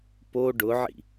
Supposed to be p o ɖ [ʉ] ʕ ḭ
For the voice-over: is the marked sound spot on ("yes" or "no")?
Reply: no